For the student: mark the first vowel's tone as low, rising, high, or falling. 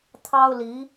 high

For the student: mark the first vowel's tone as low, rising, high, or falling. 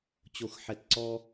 low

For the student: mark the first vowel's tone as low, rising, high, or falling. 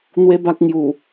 high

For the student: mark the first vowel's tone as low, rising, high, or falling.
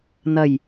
low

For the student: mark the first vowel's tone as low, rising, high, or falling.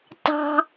high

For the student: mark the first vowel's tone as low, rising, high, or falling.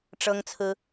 high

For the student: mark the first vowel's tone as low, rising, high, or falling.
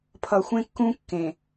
low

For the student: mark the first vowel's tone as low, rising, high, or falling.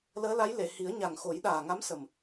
rising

